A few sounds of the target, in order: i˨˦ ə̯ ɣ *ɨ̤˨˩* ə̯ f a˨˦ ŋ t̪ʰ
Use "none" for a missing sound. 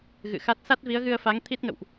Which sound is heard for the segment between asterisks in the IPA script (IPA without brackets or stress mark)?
ɨ˧